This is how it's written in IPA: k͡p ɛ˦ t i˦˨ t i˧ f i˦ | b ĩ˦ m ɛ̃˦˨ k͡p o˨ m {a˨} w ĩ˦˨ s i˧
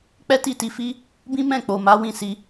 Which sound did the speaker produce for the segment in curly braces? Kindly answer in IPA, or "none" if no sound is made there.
a˨˦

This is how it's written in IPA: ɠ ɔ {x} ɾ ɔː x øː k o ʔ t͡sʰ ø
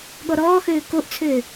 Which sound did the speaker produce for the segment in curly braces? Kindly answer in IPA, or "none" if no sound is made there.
none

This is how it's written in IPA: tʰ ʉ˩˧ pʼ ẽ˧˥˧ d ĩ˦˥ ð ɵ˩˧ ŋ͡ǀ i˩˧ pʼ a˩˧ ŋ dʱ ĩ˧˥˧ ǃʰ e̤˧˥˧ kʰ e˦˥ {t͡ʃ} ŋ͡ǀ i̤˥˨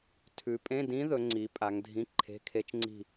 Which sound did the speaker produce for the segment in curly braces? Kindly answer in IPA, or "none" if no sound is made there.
t͡ʃ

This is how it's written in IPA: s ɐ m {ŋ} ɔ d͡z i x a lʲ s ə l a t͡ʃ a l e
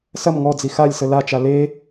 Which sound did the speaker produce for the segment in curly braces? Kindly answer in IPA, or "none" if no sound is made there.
ŋ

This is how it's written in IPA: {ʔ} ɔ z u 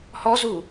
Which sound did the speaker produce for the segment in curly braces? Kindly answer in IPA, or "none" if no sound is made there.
h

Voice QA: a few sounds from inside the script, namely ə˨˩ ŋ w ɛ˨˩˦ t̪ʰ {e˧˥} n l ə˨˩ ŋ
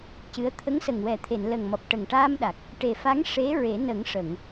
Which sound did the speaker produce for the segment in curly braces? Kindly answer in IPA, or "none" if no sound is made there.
e˨˩˨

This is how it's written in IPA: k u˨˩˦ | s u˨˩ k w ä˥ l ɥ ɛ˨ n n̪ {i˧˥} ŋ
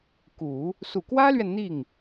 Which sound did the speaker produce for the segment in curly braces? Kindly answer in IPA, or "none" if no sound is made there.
i˥˩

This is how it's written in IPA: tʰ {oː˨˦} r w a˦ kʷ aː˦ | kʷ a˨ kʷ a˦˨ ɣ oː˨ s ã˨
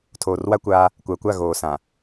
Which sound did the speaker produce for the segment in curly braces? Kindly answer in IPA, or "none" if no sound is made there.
oː˨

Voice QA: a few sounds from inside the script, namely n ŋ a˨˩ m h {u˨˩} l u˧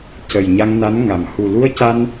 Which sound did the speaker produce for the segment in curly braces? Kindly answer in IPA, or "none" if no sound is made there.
u˨˩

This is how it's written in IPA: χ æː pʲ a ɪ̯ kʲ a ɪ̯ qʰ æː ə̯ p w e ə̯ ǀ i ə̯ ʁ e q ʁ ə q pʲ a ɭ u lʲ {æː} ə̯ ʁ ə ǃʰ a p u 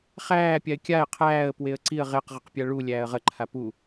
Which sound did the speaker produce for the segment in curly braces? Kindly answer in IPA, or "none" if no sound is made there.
æː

